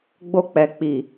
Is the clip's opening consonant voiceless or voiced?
voiced